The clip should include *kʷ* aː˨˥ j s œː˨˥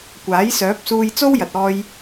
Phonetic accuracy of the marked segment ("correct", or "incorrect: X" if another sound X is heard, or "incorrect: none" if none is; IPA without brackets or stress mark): correct